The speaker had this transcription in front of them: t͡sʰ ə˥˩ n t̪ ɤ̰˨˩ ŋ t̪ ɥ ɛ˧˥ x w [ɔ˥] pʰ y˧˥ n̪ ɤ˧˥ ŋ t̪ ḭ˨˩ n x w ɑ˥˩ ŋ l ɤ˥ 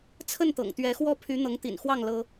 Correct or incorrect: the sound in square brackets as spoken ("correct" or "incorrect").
correct